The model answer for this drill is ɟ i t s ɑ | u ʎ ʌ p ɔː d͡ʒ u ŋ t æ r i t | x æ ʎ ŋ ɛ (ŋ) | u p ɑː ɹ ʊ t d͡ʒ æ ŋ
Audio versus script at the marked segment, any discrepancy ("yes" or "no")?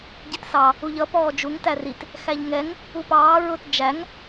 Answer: no